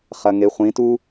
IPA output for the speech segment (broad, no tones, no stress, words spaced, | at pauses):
χɐŋeχʷĩtu